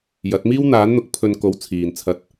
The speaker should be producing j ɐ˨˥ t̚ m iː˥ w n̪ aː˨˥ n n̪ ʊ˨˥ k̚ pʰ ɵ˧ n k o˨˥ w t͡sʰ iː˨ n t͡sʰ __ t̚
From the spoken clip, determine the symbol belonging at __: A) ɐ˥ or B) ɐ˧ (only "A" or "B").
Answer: B